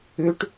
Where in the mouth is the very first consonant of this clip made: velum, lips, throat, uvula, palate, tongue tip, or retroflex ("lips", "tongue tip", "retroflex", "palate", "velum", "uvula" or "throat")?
retroflex